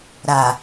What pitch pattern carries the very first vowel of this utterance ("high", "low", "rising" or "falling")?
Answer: low